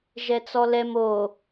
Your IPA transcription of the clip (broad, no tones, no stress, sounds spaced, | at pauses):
ʒ ɛ t͡s ɔ l ɛ m o